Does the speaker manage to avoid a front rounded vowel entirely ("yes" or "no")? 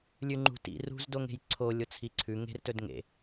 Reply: yes